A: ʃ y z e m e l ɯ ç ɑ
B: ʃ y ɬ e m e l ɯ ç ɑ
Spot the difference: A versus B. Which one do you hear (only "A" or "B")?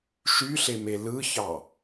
B